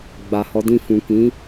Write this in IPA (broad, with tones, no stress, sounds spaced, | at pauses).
ɡ͡b a˨ h ɔ˨˦ d ĩ˦˨ f ũ˨ k ĩ˨˦